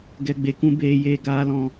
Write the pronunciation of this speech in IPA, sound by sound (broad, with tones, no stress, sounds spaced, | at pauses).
ɡ ɛ˨ ɡ͡b e˨ k ũ˧ b eː˨ j eː˨ ɡ aː˧ l ɔ̃˧